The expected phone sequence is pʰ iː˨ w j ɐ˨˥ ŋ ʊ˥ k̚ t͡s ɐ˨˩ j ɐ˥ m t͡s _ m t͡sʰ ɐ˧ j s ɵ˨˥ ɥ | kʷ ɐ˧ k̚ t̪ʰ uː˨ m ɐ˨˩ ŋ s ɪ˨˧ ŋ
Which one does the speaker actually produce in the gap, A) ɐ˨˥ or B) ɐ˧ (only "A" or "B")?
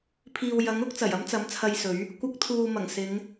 A